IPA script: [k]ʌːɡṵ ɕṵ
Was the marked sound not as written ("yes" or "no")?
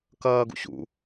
no